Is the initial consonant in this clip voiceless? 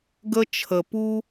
no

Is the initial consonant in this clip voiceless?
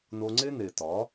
no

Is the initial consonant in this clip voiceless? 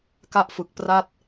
yes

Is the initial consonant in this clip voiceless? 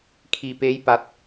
yes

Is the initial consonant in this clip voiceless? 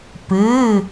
yes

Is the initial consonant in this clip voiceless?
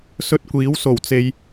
yes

